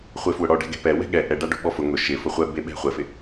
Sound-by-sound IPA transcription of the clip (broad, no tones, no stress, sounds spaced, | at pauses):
χʷ e f w ʊ ɽ ɔ ɖ ɛ̤ ɡ ɛ̤ p ɛ w ɛ̤ ɠ ɛ ʔ ɛ ɖ a ɖ o̤ ɓ ɔ f ʊ ŋ ʊ ʃ ɪ f ʊ χʷ ɛ b e ɓ ɛ̤ χʷ ɛ f ɪ